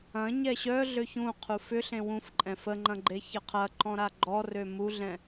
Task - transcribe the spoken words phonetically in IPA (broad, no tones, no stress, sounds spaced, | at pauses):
ɐ̃ ɲ ɛ ɕ œ ɮ ø ç ũ qʰ u f ʏ ɬ ẽ w ũ f ǃʼ ɛ̃ f ə ŋ͡ǃ ɐ̃ ɡ͡ǃ e ç ə qʰ ɐ ǃ ɔ̃ ɾ a ɡ͡ǃ ɔ r ø m u ɮ ɛ̃